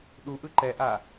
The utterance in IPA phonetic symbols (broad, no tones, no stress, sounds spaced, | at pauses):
ɗ u ʔ ɯ ǃ ɛ ʔ a